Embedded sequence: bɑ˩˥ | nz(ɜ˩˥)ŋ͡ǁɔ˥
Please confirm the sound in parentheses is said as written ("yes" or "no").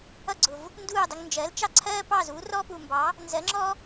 yes